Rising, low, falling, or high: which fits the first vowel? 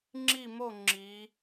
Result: falling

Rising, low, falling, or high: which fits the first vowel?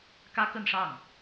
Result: high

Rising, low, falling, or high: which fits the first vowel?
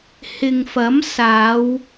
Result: low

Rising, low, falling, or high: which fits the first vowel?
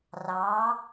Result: rising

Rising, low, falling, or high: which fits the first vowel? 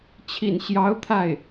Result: low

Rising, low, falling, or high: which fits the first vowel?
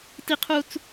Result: high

